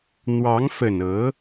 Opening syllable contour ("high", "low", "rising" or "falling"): rising